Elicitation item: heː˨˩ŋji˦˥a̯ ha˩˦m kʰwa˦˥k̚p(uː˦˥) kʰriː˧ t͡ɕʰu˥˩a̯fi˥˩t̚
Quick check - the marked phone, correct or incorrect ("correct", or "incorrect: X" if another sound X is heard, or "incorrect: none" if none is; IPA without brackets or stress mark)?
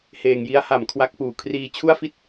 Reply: incorrect: uː˨˩